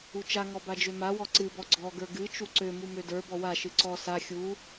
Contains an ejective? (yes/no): no